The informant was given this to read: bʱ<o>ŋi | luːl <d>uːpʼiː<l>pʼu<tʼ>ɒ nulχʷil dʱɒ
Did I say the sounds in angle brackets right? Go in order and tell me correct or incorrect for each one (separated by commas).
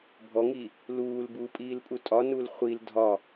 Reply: incorrect, incorrect, correct, correct